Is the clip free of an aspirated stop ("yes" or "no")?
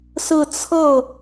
no